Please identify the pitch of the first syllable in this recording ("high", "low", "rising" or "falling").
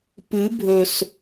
rising